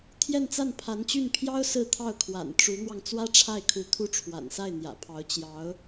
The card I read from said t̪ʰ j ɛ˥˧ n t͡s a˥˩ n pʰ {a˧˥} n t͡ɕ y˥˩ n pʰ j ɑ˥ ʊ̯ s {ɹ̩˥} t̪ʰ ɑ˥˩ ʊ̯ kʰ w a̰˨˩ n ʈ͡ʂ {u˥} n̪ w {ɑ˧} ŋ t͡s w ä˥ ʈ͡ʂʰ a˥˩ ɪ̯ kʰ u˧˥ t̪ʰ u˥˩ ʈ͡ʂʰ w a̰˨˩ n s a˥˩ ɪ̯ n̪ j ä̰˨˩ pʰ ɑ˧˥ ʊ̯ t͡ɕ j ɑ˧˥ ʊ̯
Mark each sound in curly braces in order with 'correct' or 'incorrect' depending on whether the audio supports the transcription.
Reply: correct, incorrect: ɹ̩˥˧, incorrect: u˧˥, correct

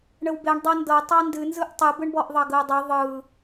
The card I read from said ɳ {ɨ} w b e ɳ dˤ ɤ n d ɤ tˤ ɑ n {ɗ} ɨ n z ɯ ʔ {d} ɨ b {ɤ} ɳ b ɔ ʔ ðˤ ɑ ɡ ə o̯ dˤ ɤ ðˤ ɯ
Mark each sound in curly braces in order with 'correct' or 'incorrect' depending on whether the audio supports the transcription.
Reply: incorrect: ə, incorrect: d, incorrect: tˤ, incorrect: ɯ

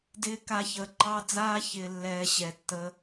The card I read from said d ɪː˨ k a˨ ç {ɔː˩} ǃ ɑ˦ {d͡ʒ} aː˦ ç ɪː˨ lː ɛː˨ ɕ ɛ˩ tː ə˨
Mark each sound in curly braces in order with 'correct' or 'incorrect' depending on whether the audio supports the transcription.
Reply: incorrect: əː˩, incorrect: d͡z

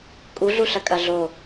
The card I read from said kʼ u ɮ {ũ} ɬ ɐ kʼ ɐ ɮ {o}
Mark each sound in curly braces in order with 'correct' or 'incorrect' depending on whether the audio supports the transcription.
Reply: incorrect: u, correct

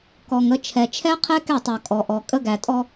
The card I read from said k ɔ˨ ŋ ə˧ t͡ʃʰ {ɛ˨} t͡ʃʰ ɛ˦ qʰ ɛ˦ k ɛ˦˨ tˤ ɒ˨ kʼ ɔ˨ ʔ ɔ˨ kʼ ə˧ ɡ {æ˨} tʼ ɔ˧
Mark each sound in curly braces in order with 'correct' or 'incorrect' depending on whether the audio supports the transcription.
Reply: correct, correct

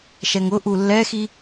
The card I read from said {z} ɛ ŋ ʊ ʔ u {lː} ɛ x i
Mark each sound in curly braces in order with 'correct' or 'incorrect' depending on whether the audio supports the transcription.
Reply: incorrect: ʃ, correct

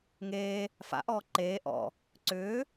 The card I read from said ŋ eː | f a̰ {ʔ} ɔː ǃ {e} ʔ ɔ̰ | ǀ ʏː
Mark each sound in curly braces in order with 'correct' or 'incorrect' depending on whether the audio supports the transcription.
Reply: correct, incorrect: eː

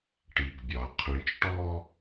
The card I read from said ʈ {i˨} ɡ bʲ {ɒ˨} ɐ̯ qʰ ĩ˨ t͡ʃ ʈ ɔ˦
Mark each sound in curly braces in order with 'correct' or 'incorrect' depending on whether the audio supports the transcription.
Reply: correct, correct

